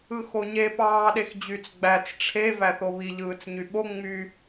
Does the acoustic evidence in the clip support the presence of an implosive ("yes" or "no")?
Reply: yes